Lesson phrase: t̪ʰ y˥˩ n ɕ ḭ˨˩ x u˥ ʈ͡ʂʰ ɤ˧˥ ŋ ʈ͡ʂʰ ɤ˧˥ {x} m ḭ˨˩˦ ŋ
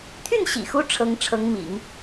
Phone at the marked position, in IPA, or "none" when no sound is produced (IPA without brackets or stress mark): ŋ